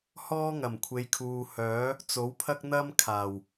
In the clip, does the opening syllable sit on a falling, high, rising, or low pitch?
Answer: high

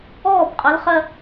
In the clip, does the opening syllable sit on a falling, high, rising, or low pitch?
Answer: falling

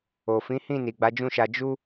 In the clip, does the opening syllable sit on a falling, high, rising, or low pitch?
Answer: low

